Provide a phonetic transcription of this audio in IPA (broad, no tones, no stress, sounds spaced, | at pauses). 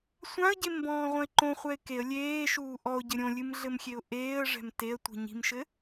sʷ ã ə̯ ɟ e m b ɔ̃ː ʁʷ ɐ̃ ɪ̯ ǃ õ χʷ ɛ ɪ̯ k e ə̯ lʲ eː ʃ uː ʔ ɔ ʊ̯ ɟ ɘ ɾʲ õ lʲ ɨ m ɮ ɘ m xʲ e ʊ̯ ʔ eː ə̯ ʐ ɛ̤ m t e ə̯ tʷ i̤ ɲ i̤ m ʃ ɘ